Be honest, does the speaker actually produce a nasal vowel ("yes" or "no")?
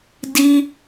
no